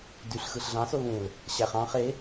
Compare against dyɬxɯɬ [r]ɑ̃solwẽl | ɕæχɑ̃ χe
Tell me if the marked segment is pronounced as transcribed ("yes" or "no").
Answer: no